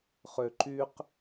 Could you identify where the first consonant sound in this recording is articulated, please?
uvular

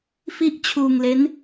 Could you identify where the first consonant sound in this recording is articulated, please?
labial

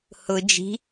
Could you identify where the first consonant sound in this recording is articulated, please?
glottal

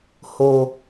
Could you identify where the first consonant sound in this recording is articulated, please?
glottal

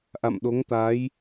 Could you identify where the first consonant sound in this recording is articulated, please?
glottal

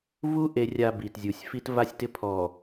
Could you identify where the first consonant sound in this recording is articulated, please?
labial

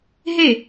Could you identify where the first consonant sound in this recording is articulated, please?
glottal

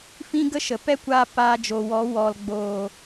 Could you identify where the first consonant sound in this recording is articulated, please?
labial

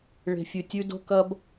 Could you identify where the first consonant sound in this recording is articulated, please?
retroflex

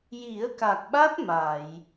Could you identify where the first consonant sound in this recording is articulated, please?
palatal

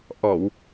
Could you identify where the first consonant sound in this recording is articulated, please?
glottal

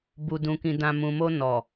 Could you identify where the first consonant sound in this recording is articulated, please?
labial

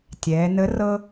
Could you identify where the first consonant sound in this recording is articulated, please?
alveolar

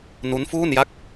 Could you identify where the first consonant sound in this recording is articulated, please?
alveolar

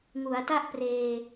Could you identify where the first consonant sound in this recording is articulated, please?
velar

